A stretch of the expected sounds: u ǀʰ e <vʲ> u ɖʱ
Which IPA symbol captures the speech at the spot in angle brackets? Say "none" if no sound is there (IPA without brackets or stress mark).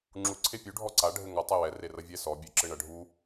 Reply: pʲ